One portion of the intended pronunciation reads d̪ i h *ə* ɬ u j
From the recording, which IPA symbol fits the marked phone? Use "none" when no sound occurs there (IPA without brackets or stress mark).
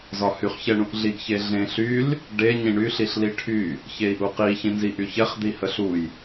ə